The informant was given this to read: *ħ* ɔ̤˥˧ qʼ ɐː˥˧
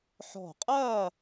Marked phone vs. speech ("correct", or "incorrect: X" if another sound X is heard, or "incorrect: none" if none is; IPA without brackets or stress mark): correct